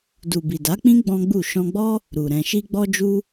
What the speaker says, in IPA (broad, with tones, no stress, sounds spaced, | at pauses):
d u˨ b i˨ d a˨˦ k͡p ĩ˦ ɡ͡b ɔ̃˦ ɡ͡b u˦˨ ʃ ɔ̃˧ ɡ͡b ɔ˦ | ɾ u˨ ɾ ɛ̃˨ ʃ i˧ ɡ͡b ɔ˧ d͡ʒ u˧